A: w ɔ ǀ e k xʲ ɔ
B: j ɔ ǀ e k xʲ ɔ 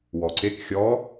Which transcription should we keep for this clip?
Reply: A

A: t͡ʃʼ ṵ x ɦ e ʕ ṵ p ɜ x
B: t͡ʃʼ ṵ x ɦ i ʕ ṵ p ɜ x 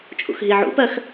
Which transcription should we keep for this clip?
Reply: B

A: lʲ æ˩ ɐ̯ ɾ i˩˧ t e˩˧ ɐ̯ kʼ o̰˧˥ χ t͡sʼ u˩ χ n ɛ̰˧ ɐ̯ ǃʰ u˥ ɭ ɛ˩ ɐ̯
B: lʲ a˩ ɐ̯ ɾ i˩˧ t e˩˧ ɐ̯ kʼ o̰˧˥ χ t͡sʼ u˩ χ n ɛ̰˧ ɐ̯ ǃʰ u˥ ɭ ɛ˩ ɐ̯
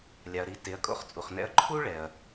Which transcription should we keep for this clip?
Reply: B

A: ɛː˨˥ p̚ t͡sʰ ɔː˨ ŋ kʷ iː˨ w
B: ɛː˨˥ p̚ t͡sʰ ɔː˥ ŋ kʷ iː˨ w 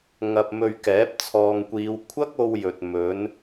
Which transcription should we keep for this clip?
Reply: A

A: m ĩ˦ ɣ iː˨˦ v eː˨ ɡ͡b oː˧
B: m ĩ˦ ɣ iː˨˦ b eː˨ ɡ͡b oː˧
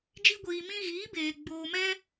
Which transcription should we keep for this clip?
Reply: B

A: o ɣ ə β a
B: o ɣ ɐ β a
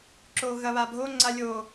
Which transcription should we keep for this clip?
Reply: B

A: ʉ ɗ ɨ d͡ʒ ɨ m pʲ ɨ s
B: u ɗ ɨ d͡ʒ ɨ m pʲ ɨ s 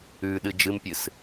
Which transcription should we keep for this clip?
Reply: A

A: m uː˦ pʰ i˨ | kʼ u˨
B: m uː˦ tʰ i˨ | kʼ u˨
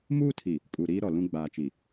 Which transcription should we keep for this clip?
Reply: B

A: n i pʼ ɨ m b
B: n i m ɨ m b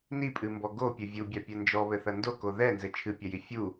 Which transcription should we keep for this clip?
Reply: A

